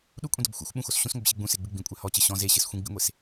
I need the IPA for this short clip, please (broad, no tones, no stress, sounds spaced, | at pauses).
ɗ u kʷʼ ĩ d ɔ b xʷ ɛ̰ xʷ ɓ ũ x o s ɕ ũ s ŋʷ ɨ b ɕ e ɡ͡b ũ s e ɡ͡b ɨ ɡ͡b ĩ kʷʼ ɛ h ɔ t͡ɕ ɘ ɕ ɔ̃ z e ɕ ɨ s xʷ ĩ ɡ͡b ḭ ŋʷ e s